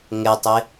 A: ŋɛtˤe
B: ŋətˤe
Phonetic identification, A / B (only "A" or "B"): A